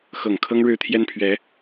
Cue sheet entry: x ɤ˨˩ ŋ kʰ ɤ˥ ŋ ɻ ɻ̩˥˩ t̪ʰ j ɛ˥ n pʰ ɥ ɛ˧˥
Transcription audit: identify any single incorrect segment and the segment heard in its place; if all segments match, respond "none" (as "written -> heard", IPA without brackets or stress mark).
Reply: none